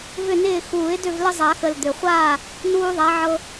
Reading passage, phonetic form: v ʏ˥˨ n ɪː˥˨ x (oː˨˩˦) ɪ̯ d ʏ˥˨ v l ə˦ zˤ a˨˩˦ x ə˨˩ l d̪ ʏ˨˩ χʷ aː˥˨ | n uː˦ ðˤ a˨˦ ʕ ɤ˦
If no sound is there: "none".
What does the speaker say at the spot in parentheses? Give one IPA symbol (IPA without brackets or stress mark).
uː˨˩˦